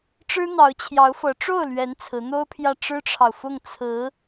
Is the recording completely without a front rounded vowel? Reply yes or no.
yes